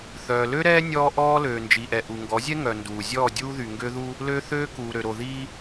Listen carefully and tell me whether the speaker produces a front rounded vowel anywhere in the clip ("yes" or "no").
yes